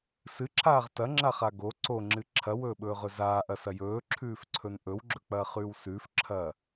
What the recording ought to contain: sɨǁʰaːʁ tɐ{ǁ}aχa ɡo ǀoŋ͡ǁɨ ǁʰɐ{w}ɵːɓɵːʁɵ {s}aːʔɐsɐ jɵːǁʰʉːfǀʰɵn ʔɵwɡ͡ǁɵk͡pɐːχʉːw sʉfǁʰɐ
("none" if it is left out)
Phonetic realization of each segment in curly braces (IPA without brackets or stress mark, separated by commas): ŋ͡ǁ, w, z